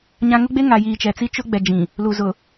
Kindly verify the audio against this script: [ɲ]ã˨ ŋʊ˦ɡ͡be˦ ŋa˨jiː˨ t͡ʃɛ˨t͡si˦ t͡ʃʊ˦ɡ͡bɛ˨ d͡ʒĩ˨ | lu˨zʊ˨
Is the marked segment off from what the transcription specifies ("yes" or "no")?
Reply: no